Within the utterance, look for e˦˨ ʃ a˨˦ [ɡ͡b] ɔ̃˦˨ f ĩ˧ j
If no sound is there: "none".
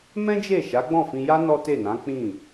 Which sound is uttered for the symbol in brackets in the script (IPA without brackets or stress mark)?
ɡ͡b